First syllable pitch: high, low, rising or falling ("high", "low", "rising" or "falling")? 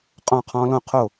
falling